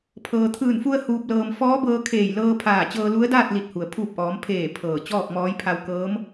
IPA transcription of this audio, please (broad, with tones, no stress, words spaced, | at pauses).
pʰɤː˩t̪ʰɯː˧˩nfu˧ə̯ huː˧p̚lɤː˧m fɔː˧˥bɤː˧kʰeː˧˩j lɤː˧pʰaː˧˩t͡ɕɤː˧ lu˧˥ə̯daː˥˨t̚ li˧˩t̚hu˩ə̯ pʰuː˧˩p̚ʔɔː˩˧m pʰeː˧˩ pʰɤː˧˩t͡ɕɔː˥˨k̚mɔː˧˥j pʰa˧wkɤː˧˥m